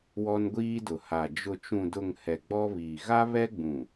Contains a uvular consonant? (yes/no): no